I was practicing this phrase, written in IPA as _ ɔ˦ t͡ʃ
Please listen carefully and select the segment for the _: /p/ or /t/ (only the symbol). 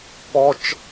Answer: p